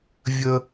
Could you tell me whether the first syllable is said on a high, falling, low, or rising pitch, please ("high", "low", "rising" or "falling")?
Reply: high